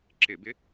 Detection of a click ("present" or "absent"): present